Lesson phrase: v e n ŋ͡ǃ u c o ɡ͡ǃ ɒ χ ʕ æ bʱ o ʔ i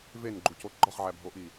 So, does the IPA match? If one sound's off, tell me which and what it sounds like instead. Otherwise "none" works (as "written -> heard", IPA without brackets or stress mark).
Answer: ŋ͡ǃ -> ɡ͡ǃ